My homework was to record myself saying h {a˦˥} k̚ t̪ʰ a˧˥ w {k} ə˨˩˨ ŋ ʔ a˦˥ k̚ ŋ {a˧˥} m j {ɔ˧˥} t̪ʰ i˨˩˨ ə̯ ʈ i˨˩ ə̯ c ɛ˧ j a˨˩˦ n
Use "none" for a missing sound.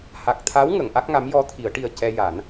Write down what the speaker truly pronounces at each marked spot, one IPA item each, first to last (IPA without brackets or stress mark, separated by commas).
a˨˩, ŋ, a˧˥, ɔ˧